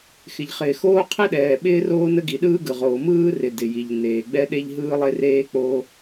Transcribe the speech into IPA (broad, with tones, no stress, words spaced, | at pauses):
xɪ˩ʎχɪː˩xoː˥ qʰɪ˥ɗɛː˩ ɓɪː˥roː˥nə˥ ɡi˩ɗɯː˥ɡɯ˩ʁoː˩ mɯː˥ rɪ˩ dɪ˩ji˩ʎ neː˩ɡ͡bɛ˥ ɗe˥ʎɦɯː˥lˠe˥ reː˥ k͡po˥